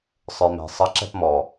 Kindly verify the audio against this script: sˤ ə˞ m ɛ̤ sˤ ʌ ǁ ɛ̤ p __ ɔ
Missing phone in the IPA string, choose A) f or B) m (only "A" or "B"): B